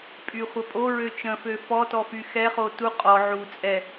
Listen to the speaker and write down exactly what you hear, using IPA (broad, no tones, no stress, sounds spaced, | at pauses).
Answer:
pʼ y χʷ ə pʼ o ɹ ø t͡ʃ ə̃ f ø f ɔ t ɔ f y x ɛ χ o t u qʼ ɔ ʕ u t͡sʼ ɛ